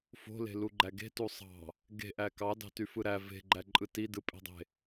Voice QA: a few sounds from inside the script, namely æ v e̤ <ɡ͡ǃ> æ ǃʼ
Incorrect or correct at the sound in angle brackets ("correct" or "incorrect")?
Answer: correct